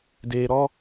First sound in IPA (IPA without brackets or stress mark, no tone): d